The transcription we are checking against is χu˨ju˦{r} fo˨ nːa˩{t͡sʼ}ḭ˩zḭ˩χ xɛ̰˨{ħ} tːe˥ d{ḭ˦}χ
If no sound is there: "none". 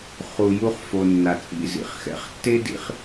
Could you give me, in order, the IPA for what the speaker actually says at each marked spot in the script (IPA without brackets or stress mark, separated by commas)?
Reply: χ, t͡sʼ, χ, ḭ˦